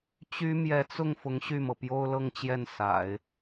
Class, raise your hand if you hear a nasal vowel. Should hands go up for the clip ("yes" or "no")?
no